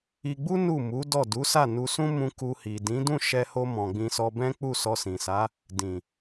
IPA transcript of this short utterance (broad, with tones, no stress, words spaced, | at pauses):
i˧ɡ͡bu˦ nu˦˨ mu˨˦dɔ˦˨ du˨˦sa˦˨nu˧ sũ˦ mũ˧ku˧hi˨dĩ˨˦ dũ˦˨ʃɛ˧ho˧ mɔ̃˨ɡ͡bĩ˧sɔ˧bɛ̃˦ k͡pu˦˨sɔ˧sĩ˨sa˨˦ | dĩ˨